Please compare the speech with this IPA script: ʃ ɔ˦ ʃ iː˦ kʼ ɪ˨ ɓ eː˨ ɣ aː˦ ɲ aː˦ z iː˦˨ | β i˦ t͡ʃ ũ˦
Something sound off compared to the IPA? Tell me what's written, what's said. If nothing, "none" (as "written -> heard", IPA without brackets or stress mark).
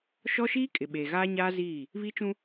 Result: none